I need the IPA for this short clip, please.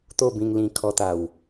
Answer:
t̪ o˥˧ b ĩ˧ ŋ l ĩ˧ kʰ ɔ˧ t̪ a˨˩ w

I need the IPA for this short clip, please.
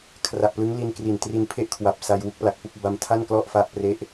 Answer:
kʰ r a˨˩ ʔ p l ɯ˦˥ ŋ l i˧ n k r i˨˩ n t r i˧ n pʰ e˥˩ ʔ kʰ w a˨˩ p̚ s a˧ j w u˦˥ k̚ p l a˨˩ k̚ p u˥˩ k̚ b a˧ m tʰ a˥˩ n k l ɔ˥˩ ʔ f a˦˥ ʔ p r e˦˥ ʔ

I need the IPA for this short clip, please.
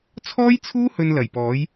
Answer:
t͡sʰ ɔː˥ j t͡sʰ uː˥ h ɵ˧ n l ɐ˨˩ j p ɔː˨˥ j

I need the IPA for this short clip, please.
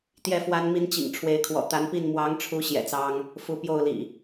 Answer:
t̪ j ɛ˥˨ f w a˦ n m i˦ n t͡ɕ ḭ˨˩ ŋ ʈ͡ʂʰ w e˨˦ ɪ̯ kʰ w ɔ̰˨˩ t̪ a˨˦ n p i˥˨ n m w ɑ˨˦ ŋ ʈ͡ʂʰ u˨˦ ɕ j ɛ̰˨˩ t͡s ɑ˦ ŋ | f u˨˦ p j o˥˨ ʊ̯ l ḭ˨˩

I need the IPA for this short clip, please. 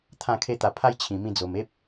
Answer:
t̪ʰ ã˥˧ kʰ e˦ t̪ a˧ pʰ a˦ j t͡ɕʰ ĩ˨˩ m ĩ˧ d͡z o˨˩ m e˦ p̚

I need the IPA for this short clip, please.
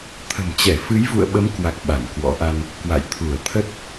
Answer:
t̪ʰ ə̤˨˩ m t͡ɕ ɛ˧˩ f ɨ˨˦ j v ṵ˧˨ ə̯ ɓ ə˨˦ m k w a˨˩ k̚ ɓ a˧˩ n k w ɔ̰˧˥ ʔ a˧ n | k w a̰˧˨ j t̪ʰ u˧˩ ə̯ t̪ʰ ə˦˥ t̚

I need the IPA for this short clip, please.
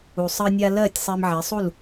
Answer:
u˩ sˤ ɜ˧ nʲ a˧ l ɜ˥˩ tʲ sˤ e˧ m ʕ e˩˥ sˤ u˥˩ l

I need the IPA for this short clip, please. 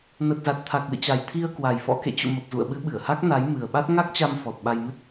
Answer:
n ə˨˩ t̚ z a˨˩ t̚ t̪ʰ a˨˩ k̚ l ɨ̰˧˨ t͡ɕ a˨˩ j t̪ʰ i˧ ə̯ k w a˨˩ j f ɔ̰˧˥ k ḛ˧˨ t͡ɕ ṵ˧˨ m ə˨˩ p̚ z ṵ˧˨ ə̯ ɓ ɨ˨˦ ɓ ɨ˧˩ ə̯ h a˦˥ k̚ n a˨˦ j m ɨ˨˩ ə̯ ɓ a˦˥ t̚ ŋ a˦˥ k̚ t͡ɕ a˧ m f ɔ˨˩ t̚ ɓ a˧ j m ɨ˦˥ t̚

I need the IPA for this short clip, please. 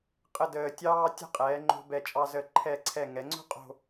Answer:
qʼ ə˥˧ d əː˧ tʲ ɑː˥ tʲ ə̤˥ qʼ ɛː˩˧ ŋ͡ǃ o̤˧ b ɛ˧˩ t͡ʃʼ ɑ˧ z ə˧˩ ǃʰ ɛ˧˩ ǀʰ ɛ˧˩ ŋ ɛ˩˧ ŋ͡ǀ o̤˥ qʼ o̤˥˧

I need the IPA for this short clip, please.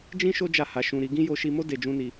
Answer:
d͡ʒ ĩ˦ ʃ o˦ d͡ʒ a˦˨ h a˧ ʃ ũ˧ ɾ i˧ ɡ ĩ˦ j o˧ ʃ i˧ m o˦ d e˧ d͡ʒ ũ˦ n i˧

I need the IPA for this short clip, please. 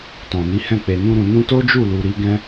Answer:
t ɔ̃˨ n i˨˦ h ɛ̃˦˨ k͡p e˨ n ũ˧ ɾ ũ˨ n ũ˧ t o˦ d͡ʒ u˦˨ l u˨ ɾ i˨˦ ɡ ɛ̃˦

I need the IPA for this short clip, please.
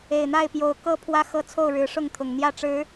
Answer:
e˨˩ ɪ̯ n̪ a˥˨ ɪ̯ p j o˨˦ ʊ̯ k ɤ˦ pʰ w ä˦ x ɤ˦ t͡sʰ o˥˨ ʊ̯ ɻ ɻ̩˨˦ ʂ ʊ˥˨ ŋ t̪ʰ ʊ˨˩ ŋ n̪ j ä˥˨ ʈ͡ʂ ɻ̩˨˦

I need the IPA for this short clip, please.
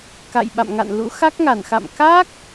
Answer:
k a̰˧˨ j ɓ a̰˧˨ m ŋ a̰˧˨ n l ṵ˧˥ x a˦˥ k̚ ŋ a˧˩ n x a̰˧˨ m k a˦˥ k̚

